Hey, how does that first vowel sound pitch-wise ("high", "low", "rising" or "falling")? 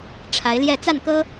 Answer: rising